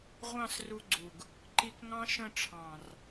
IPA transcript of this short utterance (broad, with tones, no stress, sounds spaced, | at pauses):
ʁʷ ɑ̃˦˨ s r u˧ ɡ͡ǀ u˨ ɡ | ǃ i˧ k ŋ ɑ̃˦ ʃ ə̃˦˨ ʈ͡ʂʰ ɑ̃˨ r